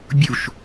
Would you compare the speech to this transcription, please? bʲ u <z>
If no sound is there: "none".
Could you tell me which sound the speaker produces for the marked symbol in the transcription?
ʃ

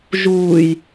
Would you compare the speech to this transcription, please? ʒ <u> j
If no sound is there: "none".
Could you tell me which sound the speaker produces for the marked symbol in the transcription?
uː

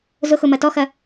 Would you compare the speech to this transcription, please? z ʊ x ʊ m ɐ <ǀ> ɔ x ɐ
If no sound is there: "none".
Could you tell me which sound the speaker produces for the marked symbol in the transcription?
t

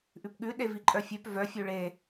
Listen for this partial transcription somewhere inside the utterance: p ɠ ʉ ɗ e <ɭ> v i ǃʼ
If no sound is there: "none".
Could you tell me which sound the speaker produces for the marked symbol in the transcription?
none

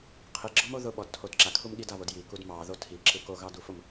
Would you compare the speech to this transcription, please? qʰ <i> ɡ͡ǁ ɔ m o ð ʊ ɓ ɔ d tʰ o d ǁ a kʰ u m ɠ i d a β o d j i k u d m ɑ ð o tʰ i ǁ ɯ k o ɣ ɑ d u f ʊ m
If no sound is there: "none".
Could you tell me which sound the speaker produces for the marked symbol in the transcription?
i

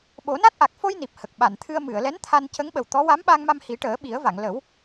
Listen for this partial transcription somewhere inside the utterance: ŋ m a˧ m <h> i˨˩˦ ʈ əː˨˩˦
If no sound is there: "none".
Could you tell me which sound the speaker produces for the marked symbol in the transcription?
h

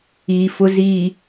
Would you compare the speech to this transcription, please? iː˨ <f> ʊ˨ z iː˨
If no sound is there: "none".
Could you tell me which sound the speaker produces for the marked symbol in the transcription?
f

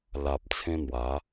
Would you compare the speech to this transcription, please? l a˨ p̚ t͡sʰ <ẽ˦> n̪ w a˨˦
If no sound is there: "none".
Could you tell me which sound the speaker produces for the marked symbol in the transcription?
ẽ˦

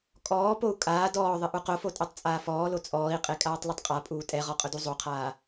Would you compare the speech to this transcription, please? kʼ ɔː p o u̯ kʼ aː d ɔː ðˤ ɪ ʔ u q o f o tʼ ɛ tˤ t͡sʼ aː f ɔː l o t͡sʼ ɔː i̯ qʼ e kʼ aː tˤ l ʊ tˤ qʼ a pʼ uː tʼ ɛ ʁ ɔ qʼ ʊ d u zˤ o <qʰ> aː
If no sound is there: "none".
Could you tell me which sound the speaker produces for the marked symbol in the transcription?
qʰ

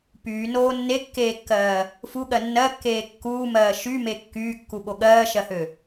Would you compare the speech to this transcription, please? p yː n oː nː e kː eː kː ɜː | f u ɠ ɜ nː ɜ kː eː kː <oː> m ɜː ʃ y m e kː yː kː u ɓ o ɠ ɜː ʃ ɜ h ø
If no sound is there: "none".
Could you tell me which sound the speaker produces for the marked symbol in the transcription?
uː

